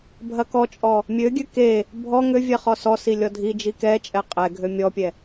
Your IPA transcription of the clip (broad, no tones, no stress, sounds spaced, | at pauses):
bʱ ɐ k ɔ t͡ʃʼ ɔ | mʲ ø ɡʲ ø k e | bʱ ɔ ŋ ø vʲ ɛ χ ɔ s ɔ s i lʲ ɔ dʱ i d͡ʒ i k ɛ t͡ʃʼ ɛ qʼ ɛ ɡʱ ø mʲ ɔ pʲ ɛ